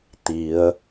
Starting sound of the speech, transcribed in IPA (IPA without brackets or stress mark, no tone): t̪